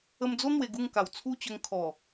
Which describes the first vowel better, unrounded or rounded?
unrounded